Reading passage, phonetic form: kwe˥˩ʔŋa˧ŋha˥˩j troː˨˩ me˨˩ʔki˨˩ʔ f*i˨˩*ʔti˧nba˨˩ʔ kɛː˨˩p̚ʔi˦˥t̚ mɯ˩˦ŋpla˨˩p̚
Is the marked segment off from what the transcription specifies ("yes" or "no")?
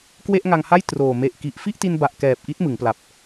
yes